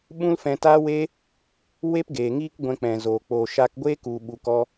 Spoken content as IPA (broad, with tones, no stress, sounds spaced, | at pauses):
ɓ ũ˦ l f ɛ̃˧ t aː˦ w e˦ | w e˦ p ɡ eː˨ ŋ iː˦ k ɡʷ ɛ̃˧ k͡p ɛ̃˨ z oː˨ k͡p oː˨ ʃ a˧ k ɡʷ eː˦ k u˨ ɓ u˨ k ɔ˧